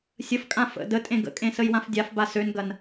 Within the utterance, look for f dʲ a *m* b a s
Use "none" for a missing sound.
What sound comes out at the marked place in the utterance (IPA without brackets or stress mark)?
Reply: f